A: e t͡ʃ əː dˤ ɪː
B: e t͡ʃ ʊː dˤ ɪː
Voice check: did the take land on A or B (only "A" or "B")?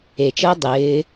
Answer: A